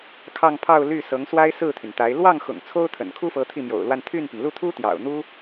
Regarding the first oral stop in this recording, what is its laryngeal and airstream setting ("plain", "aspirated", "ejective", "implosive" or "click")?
aspirated